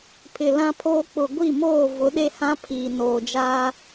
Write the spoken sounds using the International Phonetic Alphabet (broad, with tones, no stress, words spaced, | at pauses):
pʰɪ˨lã˦pʰoː˦ k͡pʊ˨ɡʷi˦˨ moː˦˨vʊ˨˦ɗe˦ hã˦pʰiː˨noː˨d͡ʒaː˦